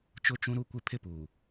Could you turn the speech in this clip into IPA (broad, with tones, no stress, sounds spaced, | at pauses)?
t͡ʃ ʊ˦˨ t͡ʃ ũ˦ ɾ u˦ kʷ ɪ˦ pʰ ɪ˦ p uː˨